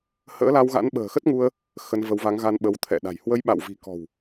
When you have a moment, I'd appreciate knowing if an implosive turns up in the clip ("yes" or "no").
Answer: yes